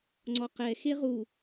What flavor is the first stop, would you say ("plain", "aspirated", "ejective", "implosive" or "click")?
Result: click